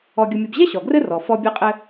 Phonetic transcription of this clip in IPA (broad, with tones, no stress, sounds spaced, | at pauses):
ɔ˧ ɡʲ ʊ˧ mʲ ʊ˧ b ʑ ɛ˥ ɕ ɔ˩ ɡ r ɘ˥ r ɔ˩ f ɔ˧ bʲ ɛ˧ qʼ ɘ˧